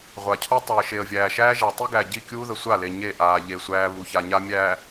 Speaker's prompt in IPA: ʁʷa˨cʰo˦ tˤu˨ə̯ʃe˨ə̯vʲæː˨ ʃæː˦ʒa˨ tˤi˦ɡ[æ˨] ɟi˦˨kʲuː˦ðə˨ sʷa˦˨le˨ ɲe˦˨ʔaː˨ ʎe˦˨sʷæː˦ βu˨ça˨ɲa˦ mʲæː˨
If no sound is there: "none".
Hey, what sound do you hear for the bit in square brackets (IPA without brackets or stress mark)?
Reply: æ˨